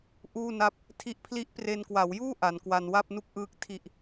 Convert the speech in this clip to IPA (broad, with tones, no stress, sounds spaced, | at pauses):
ʔ uː˥˩ n a˦˥ p̚ | tʰ i˥˩ ʔ pʰ l i˦˥ ʔ p r e˧ n k w a˩˦ w j uː˥˩ ʔ a˩˦ n k w a˧ n w a˥˩ p̚ n u˥˩ k̚ ʔ ɯː˦˥ k̚ tʰ i˨˩ ʔ